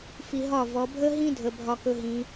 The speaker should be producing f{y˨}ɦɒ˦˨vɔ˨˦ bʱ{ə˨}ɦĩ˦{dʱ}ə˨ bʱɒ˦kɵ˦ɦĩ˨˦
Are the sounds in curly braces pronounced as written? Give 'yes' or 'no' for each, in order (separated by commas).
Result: no, no, yes